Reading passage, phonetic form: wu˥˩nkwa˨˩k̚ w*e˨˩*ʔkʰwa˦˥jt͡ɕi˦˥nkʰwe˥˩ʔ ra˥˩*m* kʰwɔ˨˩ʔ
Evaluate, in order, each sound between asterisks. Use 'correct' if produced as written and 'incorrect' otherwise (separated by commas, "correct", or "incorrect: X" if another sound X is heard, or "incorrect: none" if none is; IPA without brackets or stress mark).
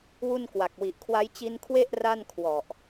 incorrect: i˨˩, incorrect: n